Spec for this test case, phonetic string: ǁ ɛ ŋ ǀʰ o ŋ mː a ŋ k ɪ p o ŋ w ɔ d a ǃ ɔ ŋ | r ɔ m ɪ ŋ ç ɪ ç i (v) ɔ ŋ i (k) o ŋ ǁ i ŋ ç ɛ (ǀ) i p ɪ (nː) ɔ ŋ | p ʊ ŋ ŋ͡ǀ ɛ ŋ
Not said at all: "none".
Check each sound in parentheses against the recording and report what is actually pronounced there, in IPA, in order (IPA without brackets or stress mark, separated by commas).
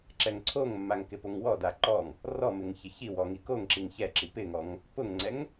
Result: w, k, ǁ, ŋ